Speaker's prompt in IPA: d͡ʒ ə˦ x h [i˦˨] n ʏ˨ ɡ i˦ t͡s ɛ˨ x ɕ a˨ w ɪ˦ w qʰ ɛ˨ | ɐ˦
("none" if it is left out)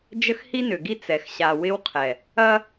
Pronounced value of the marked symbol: i˦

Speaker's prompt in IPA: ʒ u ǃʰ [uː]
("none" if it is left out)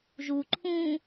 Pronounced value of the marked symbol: ũː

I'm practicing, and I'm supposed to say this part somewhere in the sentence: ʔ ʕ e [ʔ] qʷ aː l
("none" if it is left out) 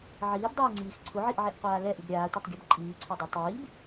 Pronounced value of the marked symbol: ʔ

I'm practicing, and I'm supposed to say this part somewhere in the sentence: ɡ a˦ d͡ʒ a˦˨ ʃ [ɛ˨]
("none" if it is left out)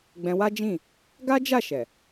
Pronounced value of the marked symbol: ɛ˨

